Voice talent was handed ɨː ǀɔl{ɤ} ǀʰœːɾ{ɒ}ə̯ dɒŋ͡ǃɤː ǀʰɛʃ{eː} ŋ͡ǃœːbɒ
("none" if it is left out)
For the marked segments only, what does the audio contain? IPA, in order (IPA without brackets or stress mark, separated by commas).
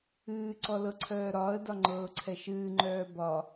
ɤ, ɒː, ɨː